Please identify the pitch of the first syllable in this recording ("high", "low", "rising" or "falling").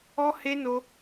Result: high